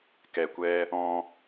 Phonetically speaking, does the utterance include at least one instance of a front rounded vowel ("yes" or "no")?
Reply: no